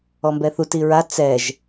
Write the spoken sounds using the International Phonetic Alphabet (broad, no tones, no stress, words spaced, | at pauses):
ɔmbɛθut iɹa t͡sɛʒ